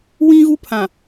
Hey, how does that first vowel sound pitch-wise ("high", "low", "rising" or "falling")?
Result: high